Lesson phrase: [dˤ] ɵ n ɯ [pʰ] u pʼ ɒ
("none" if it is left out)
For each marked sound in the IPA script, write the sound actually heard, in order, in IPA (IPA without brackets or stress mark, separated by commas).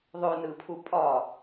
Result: ðˤ, pʰ